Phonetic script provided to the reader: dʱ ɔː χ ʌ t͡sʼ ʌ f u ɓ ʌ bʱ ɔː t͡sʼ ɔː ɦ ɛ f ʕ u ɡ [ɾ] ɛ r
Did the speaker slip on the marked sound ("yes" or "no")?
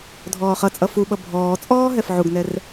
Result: yes